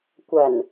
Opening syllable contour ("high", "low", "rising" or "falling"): low